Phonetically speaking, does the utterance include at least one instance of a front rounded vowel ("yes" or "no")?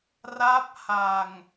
no